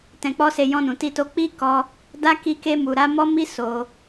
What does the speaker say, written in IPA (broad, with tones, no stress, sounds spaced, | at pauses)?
t ɛ̃˧ k͡p ɔ˦ s e˧ j ɔ̃˧ n ũ˨ t i˧ t o˧ k͡p i˧ k ɔ˧ | d a˦ k i˧ k e˧ m u˨ ɾ a˧ m ɔ˦ m i˦ s o˧